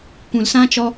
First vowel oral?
no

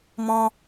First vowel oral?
no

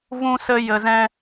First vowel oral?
no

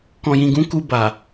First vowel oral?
no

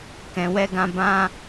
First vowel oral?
no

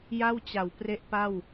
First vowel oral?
yes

